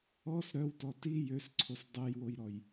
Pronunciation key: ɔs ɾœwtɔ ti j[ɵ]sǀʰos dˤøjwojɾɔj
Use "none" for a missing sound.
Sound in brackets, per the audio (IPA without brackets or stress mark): ø